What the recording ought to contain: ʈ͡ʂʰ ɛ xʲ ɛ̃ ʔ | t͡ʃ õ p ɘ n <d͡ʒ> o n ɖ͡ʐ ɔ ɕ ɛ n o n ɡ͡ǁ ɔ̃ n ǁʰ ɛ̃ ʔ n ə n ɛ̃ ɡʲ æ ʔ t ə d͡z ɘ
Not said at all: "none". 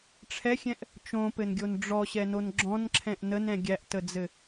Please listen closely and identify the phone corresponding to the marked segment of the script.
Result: ɡʲ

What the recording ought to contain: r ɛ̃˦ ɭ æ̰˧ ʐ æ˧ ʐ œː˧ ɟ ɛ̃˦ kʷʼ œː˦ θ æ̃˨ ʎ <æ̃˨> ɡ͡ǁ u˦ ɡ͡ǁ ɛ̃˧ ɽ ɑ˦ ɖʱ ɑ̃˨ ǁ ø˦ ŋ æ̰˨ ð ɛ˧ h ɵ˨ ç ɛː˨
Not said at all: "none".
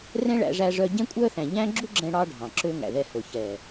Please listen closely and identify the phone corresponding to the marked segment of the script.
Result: æ̃˦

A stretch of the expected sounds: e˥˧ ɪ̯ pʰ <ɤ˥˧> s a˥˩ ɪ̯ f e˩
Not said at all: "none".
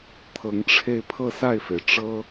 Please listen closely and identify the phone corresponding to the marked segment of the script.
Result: ɤ˥˧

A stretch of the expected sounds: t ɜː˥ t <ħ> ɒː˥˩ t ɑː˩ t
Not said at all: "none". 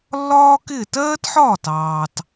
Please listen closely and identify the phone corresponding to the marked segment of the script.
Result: ħ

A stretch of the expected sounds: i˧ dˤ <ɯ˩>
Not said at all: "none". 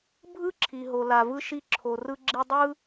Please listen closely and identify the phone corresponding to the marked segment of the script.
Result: ɯ˥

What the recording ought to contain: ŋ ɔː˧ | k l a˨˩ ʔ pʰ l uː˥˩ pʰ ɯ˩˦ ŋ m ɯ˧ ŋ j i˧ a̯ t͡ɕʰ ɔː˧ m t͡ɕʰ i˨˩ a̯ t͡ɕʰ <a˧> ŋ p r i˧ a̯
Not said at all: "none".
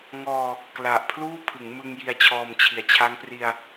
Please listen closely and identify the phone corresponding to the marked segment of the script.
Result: a˦˥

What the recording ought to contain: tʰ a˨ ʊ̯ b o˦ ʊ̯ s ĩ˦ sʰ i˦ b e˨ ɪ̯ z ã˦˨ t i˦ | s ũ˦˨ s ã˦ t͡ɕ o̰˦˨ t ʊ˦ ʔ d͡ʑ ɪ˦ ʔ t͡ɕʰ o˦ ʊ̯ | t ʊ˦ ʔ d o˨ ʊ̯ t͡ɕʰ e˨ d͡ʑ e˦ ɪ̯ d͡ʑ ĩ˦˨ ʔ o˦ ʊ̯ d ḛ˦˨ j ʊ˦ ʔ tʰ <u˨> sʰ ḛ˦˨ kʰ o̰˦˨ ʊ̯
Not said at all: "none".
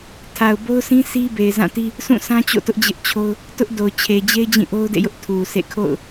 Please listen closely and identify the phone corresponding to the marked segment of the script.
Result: u˨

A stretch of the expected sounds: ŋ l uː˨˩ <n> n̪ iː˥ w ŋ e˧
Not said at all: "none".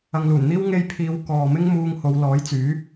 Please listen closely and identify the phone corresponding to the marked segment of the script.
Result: n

